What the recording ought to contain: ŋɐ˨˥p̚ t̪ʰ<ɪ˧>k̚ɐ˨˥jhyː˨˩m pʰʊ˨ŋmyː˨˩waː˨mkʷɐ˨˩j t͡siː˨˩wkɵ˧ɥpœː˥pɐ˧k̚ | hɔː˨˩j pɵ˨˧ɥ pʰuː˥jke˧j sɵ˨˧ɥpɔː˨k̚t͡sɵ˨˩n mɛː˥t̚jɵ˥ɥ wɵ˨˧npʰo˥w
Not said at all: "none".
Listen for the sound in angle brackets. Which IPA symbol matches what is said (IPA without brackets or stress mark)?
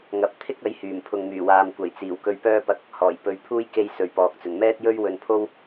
ɪ˥